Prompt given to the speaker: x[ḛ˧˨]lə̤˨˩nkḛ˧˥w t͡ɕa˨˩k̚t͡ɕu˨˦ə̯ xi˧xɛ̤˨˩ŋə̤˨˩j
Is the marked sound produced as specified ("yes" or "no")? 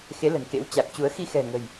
no